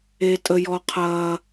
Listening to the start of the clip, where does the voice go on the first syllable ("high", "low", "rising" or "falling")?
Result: high